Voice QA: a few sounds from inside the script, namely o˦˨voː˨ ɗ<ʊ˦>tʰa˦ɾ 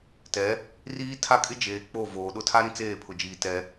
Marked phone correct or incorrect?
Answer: correct